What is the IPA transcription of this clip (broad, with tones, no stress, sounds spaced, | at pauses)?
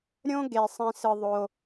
ɾʲ õ˦ ɡ e˧ sˤ ĩ˧ s ɯ˧ ðˤ o˧